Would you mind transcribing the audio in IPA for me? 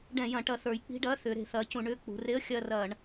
ɖ ɛ̃˧˩˧ j ɐ̃˩˧ ʈ ɐ˧˩˧ θ ə˞˩˧ j k͡p i̤˧˥˧ ɖ ɐː˧˥˧ θ ʏː˩˧ ɾ e̤˧˩˧ θ ɐː˩˥ c ũ˩˧ ɳ ʏː˧˥˧ k͡p ṳ˩˧ r e˧˥˧ ə̯ xʲ ɐː˦˨ r ɐː˧˩˧ ɳ

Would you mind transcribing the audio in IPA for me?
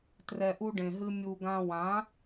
t r ɛ˧ ʔ u˦ ɖ ẽ˨ ɦ ɨ˦ mʲ u˨ ɡ ã˧ w ã˨˦

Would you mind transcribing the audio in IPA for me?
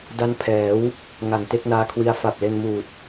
d a˦˥ n pʰ ɛː˩˦ w | ŋ a˨˩ ŋ t e˥˩ k̚ n aː˦˥ kʰ w i˦˥ a̯ f a˨˩ p̚ l e˧ n m uː˨˩ t̚

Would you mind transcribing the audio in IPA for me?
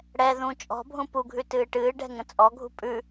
ɽ ɛ ð ũ t͡ʃʼ ɔ̤ bʱ ũ p u ɡʱ ʉ t ɨː ʈ ɨː ɖ ɛ̤ ŋ ə̃ t͡sʼ ɔ ɡʱ ṳ pʼ ʉ

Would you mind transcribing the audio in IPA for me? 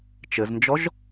t͡ʃ ɘ z n d͡ʒ ɔ ʒ

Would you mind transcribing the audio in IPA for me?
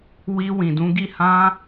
w i˧ w ĩ˨ d ũ˨˦ ɡ i˦˨ h ã˧

